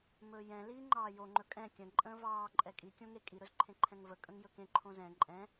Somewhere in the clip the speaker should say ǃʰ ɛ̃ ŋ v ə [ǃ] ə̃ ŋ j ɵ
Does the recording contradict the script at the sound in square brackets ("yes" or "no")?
yes